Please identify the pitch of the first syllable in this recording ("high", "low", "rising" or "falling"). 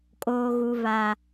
high